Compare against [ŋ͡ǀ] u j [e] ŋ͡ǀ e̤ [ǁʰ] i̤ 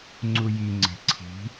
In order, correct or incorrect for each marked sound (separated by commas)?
correct, incorrect, incorrect